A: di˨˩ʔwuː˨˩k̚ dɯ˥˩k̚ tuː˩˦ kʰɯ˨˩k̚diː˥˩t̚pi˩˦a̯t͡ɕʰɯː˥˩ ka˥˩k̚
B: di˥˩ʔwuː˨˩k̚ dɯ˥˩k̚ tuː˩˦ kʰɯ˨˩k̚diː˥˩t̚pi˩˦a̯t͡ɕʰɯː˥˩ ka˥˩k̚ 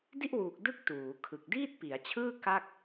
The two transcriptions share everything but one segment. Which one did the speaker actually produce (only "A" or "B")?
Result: B